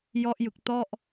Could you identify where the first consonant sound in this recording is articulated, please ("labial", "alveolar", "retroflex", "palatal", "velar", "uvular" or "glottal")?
palatal